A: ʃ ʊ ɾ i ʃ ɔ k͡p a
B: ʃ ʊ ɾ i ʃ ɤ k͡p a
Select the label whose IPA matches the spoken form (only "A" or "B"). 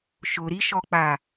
A